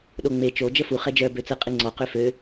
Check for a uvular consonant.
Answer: present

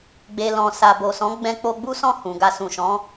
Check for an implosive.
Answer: absent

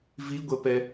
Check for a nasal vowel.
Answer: absent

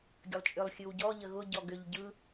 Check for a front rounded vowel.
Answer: present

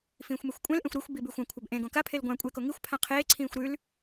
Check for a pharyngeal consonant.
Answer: absent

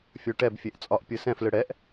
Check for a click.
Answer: absent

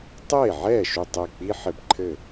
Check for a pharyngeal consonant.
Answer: present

